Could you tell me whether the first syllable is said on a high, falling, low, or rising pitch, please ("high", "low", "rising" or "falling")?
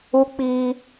high